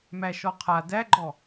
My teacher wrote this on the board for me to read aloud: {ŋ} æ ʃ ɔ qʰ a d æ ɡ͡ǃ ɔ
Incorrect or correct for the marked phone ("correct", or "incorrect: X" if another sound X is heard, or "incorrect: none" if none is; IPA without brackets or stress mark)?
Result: incorrect: m